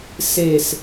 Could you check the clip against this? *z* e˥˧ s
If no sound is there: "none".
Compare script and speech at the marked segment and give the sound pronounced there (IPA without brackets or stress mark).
s